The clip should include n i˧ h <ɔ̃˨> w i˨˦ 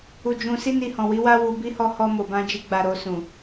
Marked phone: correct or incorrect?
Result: correct